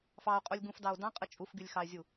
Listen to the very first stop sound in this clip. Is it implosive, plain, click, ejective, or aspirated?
ejective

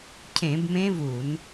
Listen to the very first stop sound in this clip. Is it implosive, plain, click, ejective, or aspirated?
aspirated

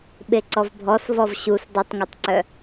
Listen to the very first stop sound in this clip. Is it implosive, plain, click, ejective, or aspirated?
implosive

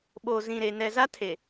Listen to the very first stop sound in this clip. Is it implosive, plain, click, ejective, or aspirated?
implosive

